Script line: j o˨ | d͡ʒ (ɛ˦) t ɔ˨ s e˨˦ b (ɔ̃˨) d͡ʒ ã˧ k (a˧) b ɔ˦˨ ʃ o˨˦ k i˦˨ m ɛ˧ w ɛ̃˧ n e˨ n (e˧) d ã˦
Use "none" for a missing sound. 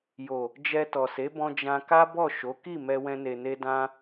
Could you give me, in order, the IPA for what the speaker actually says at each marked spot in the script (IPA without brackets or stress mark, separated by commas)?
ɛ˧, ɔ̃˧, a˦, e˧